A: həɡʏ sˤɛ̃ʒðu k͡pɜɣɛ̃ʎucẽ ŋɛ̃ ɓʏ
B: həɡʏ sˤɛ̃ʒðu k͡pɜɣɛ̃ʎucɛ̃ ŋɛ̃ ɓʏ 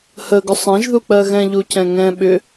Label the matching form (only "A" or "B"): B